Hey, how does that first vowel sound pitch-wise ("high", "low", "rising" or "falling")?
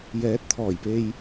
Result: rising